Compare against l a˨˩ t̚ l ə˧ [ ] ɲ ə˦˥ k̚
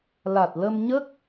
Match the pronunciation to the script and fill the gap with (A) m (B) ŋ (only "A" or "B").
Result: A